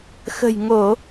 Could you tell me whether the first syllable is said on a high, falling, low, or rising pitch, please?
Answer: low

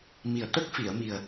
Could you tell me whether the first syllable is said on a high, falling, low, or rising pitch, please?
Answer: low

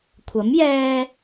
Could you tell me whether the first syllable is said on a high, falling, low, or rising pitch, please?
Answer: rising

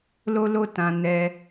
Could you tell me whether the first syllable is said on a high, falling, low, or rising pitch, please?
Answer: high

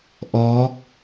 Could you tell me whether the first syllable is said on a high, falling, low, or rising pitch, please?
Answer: rising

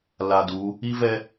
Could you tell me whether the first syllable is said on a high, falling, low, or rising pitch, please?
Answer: low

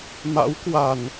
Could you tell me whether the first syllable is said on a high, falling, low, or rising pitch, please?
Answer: rising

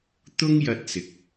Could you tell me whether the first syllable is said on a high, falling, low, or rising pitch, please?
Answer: high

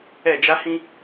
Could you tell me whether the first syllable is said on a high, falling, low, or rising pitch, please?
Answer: falling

